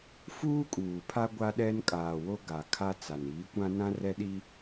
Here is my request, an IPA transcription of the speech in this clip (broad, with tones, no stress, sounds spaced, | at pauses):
f uː˦ kʼ uː˨ pʰ a˦ ɡʷ a˦ ɗ ɛ˦ n kʼ aː˨ w o˦ ɡ a˨ kʰ a˦ t͡s a˨ n iː˨˦ kʷ ã˦ n ã˦ r ɛ˦ ɗ i˦